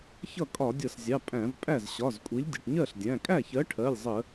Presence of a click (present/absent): absent